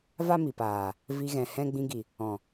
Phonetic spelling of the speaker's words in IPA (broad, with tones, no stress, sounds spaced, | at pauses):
v a˦ m i˨ p aː˨ | v i˧ ɣ ɛ̃˨ h ɛ̃˦ ɡ͡b ĩ˧ ɡ i˨ | ɔ̃˨